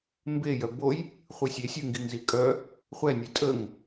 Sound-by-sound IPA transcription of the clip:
m b e j œ b o j | χʷ ɯ sʲ e sʲ ɯ ŋ ɡ i ŋ z i kʼ œ | χʷ ɛ nʲ ɯ tʼ ə ŋ

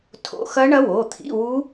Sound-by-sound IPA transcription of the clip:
tʰ o̰˧˥˧ x ɐ˦˥ ɳ ɐ˦˥ w o˩˧˩ t̪ʰ ḭ˧˥˧ w u˦˥

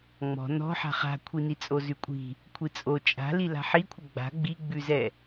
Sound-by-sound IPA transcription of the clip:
ŋ͡m ɔ̤ n ɔ̤ ħ a̤ χ a̤ kʷʰ i n i t͡sʼ o z ʉ kʷʼ i̤ | kʷʰ i t͡sʼ o t͡ʃʼ a̤ l i l a̤ ħ i kʷʰ ə ɡ͡b a̤ ɡ͡b i ɡ͡b ʉ z ɛ

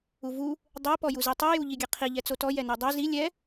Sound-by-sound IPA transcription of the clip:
u v u | dˤ ɛ p ɔ j u z i tˤ o j u ʎ i ɡʲ ɛ qʰ i ʎ ɛ t͡s o t ɔ j ɛ n o dˤ o z i lʲ ɛ

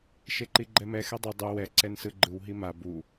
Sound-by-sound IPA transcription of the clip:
ʃ e ǃ i ɡ͡ǃ ɛ m ɛ x ɛ dˤ ɯ dˤ u w ɛ ǀ ɛ n s ɯ ɡ͡ǃ ɯ w ɦ i m a b u

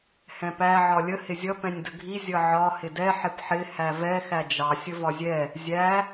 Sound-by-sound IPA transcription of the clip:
h ɛ̃ p æ ʕ ɒ lʲ ə h ɪ zʲ ʌ p ɛ̃ nʲ d ə ɡʱ i zʲ ʌ ʕ ɒ h ɪ d ɛ ħ ɪ p ħ ɪ h æ v ɛ x æ d͡ʒ ɑ sʲ ə v ɒ zʲ ɛ | zʲ æ

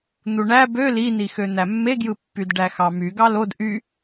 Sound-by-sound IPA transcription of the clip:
n̪ u ɳ æ b ø l i n i x ø n̪ æ mː e ɡ j ɯ pː y d ɖ æ x ɑ m y ɡ ɑ l o d ʔ y

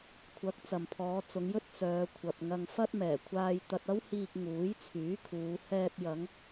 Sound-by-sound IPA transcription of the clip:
kʷʰ ɐ˨˥ k̚ t͡s ɐ˨ m pʰ ɔː˨˧ t͡s ʊ˨˧ ŋ j ɵ˥ t̚ t͡s œː˨˧ kʷʰ ɐ˨ p̚ ŋ ɐ˧ ŋ f ɐ˥ t̚ m ɛː˨˩ kʷʰ aː˧ j t̪ ɐ˧ t̚ ɐ˥ w h iː˧ k̚ ŋ uː˨˥ j t͡sʰ yː˨˥ kʰ uː˨˧ h ɛː˧ p̚ j ɐ˨˧ ŋ

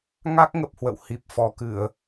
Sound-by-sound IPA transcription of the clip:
ŋ a˦˥ k̚ ŋ ə˨˩ p̚ h w ə̰˧˨ w h i˨˩ p̚ f ɔ˨˩ k ɨ˧˩˨ ə̯

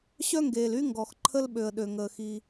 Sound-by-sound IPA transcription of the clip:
ɕ œ˥ ŋ ɡ eː˩ l y˥ ŋ ɡ ɔ˩ x ǃʰ ə˥ l ɓ ø˩ ə̯ ɗ ø˩ ŋ əː˩ x i˩

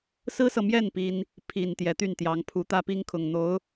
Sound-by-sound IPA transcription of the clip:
s ɹ̩˥ s ɤ˨ m j ɛ˥˩ n p i˥ n | pʰ i˨˩ n t̪ j ɛ˧˥ t̪ y˥˩ n t̪ j ɑ˧˥ ŋ pʰ u˧˥ t̪ ä˥ p i˥ ŋ kʰ ʊ˨˩ ŋ n̪ o˧˥ ʊ̯

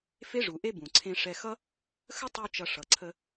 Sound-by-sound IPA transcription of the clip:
f e˥ ʐ u˩ ʔ e˥ b ũ˩ ǀʰ ẽ˧ ʂ ɛ˧ x ʌ˥ | x ə˥ tˤ u˥ t͡ʃ ʌ˧ ʂ ʌ˩ ǀʰ ə˧

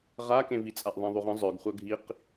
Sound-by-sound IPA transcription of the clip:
ʁ a k ẽ v i t͡sʼ a ʔ ðˤ ẽ ðˤ u ʁ ə̃ zˤ œ ɡ χʷ œ ɡʱ i q

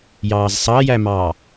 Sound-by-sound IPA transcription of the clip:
j ɑː z sˤ ɑ j æ m ɑː

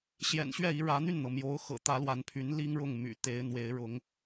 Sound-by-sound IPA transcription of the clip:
ɕ j ɛ̰˨˩ n ɕ ɥ ɛ˥˩ i˧˥ ɻ ä˧˥ n̪ y˥˩ n n̪ ɤ˩ m j o˧˥ ʊ̯ x ɤ̰˨˩ t̪ ä˧˥ l w a˧˥ n pʰ y˧˥ n l i˥ ŋ ɻ ʊ˥˩ ŋ m y̰˨˩ t̪ e˧˥ ɪ̯ n̪ w e˧˥ ɪ̯ ɻ ʊ˧˥ ŋ

